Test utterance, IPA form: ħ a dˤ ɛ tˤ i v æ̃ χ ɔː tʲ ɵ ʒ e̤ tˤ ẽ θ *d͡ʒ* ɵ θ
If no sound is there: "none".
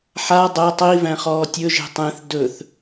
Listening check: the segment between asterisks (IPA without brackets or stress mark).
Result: d